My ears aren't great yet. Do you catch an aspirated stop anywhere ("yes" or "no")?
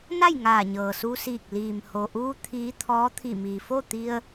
yes